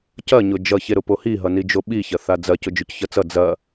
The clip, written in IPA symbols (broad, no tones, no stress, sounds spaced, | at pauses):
c ɐ ɲ ʊ d͡ʒ ʌ ç e ɾ ʊ p o h i ɦ ʌ n i d͡ʒ o ɓ i ç ɐ θ a d͡z ɐ c ʊ d͡ʒ ʊ c ç ʌ t͡s ʌ d͡z ɐ